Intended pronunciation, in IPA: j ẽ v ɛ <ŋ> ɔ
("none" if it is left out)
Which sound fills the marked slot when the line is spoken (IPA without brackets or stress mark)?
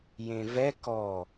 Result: k